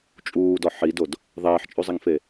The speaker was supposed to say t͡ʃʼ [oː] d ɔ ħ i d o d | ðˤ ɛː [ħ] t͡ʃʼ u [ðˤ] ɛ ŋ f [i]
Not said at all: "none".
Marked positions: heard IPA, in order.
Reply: uː, ħ, zˤ, e

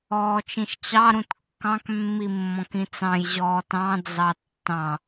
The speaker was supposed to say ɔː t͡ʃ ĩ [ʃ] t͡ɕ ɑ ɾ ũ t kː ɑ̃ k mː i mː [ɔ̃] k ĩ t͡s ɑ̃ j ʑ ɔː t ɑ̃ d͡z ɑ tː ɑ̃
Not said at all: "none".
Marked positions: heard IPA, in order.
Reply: ʃ, ɔ̃

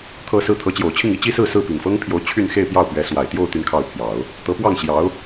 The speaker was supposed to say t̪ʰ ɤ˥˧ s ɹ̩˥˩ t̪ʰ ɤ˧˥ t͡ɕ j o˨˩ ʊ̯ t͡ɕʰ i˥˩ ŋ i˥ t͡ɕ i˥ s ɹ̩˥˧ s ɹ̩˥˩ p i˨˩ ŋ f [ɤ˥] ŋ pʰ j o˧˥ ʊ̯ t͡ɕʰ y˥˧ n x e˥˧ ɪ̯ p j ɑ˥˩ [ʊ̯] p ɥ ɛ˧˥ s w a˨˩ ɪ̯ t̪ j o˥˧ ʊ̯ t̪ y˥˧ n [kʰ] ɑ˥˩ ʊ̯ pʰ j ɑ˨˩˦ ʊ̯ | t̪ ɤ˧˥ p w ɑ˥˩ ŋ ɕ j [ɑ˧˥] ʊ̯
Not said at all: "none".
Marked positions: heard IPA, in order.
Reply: ɤ˥, ʊ̯, kʰ, ɑ˧˥

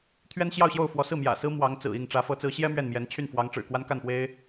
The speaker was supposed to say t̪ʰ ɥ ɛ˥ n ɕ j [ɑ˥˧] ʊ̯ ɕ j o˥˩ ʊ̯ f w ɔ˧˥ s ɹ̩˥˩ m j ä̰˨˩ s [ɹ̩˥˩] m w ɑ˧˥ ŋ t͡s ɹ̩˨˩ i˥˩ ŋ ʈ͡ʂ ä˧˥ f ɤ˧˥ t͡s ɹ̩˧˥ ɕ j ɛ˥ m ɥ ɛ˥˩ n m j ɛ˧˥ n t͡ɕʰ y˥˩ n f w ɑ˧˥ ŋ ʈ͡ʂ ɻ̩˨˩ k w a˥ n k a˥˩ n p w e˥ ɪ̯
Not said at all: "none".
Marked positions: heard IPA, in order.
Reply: ɑ˥˧, ɹ̩˥

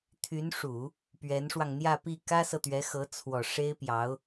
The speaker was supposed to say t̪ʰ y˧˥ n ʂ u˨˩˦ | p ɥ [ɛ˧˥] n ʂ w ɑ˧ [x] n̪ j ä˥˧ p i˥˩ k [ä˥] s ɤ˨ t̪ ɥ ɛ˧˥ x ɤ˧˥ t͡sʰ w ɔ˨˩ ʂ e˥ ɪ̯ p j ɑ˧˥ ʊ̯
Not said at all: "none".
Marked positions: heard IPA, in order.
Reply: ɛ˧˥, ŋ, ä˥

